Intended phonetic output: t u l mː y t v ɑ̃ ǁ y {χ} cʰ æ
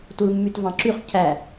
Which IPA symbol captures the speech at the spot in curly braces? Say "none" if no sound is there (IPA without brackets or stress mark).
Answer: χ